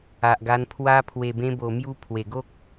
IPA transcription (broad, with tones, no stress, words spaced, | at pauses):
a˨ʔɡa˧npʰwa˦ pʰwe˨˩bẽ˧bo˨˩mju˧ pʰwe˨˩ɡo˦k̚